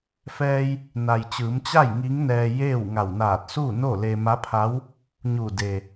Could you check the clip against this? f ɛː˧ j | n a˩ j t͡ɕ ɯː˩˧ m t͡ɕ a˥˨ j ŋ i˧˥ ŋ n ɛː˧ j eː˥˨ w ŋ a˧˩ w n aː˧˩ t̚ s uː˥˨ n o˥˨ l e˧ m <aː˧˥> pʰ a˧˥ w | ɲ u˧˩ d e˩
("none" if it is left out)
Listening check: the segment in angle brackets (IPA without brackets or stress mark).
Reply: a˧˥